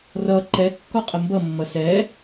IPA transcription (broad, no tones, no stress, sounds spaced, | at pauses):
r ʌ ǃ ɛ kː ɔ qʼ ə m b ʌ mː ʌ s ɛ